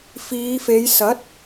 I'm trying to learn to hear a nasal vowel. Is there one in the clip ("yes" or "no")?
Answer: no